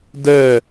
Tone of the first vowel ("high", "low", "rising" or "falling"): falling